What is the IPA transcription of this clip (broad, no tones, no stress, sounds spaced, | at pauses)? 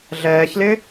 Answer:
ɮ ɛː ç l ɪː